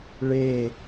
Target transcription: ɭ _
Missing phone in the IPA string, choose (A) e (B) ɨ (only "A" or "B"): A